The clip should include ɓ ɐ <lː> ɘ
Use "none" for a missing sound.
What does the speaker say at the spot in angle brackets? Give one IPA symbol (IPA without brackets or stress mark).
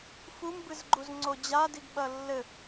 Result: lː